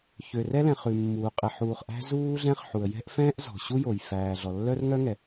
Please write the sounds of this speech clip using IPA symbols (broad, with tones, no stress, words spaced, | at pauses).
çø˩rɛ˥lɛ̃˩ χʉ˩mːuː˩ qʼɛ˩ħuː˩χ ʔæ̤˥zuː˥ɮɛ̃˥χ ħu˩ə̯jɛ̤˥ʔfɛ̃ː˥ʔ zɔ̤˩ɕu˥jo˩j fæː˩ ɮɔ˩lːœ˥rŋœ˥ŋɛ˩